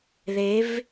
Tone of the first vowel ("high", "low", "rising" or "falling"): rising